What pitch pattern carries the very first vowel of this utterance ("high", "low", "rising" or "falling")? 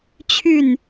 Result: falling